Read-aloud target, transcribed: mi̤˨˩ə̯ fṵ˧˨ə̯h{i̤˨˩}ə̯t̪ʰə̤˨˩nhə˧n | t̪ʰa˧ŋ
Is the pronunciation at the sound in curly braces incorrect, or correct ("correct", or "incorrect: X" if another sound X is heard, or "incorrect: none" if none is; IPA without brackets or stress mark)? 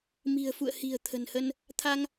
correct